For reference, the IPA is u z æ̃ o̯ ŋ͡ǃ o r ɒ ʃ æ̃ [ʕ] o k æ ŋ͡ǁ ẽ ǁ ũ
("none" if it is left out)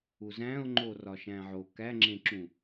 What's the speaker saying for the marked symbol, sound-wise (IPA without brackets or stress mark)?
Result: ʕ